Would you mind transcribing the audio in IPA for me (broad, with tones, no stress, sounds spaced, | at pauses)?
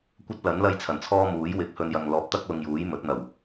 kʷ ɐ˥ t̚ l ɐ˨˥ n l ɐ˥ j t͡sʰ ɐ˨˩ n t͡sʰ ɔː˥ m uː˨˥ j w ɪ˨˥ k̚ h ɵ˧ n j ɐ˨ ŋ l ɔː˨˥ p̚ t̪ ɐ˥ k̚ l ʊ˧ ŋ j uː˨˥ j m ɵ˨˥ t̚ n̪ ɐ˨˩ w